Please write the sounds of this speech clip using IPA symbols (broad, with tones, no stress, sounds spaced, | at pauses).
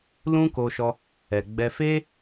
l ũ˦ k o˧ ʃ ɔ˧ | ɛ˨ ɡ͡b ɛ˧ f e˦